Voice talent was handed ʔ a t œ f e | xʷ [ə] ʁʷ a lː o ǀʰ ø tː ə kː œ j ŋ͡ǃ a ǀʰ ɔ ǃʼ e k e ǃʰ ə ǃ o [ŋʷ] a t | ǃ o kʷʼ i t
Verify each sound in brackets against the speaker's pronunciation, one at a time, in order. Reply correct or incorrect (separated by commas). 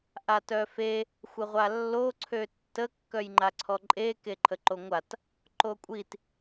correct, correct